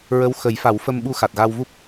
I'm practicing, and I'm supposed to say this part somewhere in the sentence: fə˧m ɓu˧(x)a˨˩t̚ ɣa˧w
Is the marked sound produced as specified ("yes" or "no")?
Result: yes